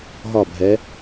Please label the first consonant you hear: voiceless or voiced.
voiced